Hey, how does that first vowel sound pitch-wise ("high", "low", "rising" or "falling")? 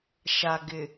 low